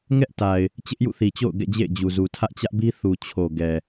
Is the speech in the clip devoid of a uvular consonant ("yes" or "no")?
yes